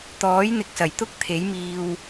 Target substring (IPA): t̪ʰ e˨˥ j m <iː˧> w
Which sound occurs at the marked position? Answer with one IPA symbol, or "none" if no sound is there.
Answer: iː˧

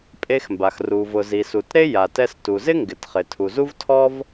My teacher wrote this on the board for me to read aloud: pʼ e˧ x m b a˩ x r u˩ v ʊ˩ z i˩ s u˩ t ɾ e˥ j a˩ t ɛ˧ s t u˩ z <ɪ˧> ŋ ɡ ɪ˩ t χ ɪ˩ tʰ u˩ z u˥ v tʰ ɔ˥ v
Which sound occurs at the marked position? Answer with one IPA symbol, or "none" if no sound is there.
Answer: ɪ˥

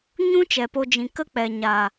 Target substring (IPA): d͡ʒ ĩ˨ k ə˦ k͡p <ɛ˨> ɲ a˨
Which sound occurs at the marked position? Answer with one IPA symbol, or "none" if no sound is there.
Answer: ɛ˨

